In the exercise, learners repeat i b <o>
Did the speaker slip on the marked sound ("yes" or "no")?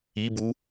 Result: yes